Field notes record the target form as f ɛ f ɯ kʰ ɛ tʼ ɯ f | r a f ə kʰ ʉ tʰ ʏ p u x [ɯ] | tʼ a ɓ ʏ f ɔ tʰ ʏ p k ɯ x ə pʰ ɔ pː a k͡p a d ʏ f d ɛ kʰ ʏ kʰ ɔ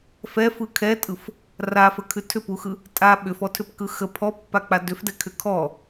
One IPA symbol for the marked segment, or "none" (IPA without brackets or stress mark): ɯ